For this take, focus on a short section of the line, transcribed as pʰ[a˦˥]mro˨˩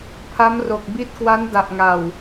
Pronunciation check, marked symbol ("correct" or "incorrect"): correct